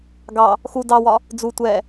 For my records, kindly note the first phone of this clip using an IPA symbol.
ɡ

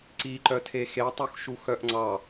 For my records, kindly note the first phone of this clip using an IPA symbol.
ǀ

